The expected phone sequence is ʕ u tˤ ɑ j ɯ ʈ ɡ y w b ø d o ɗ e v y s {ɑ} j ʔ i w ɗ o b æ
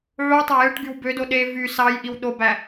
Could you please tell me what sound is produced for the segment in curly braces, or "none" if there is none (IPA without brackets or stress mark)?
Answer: ɑ